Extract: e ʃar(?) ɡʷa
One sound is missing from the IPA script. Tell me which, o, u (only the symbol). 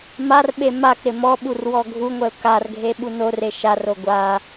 o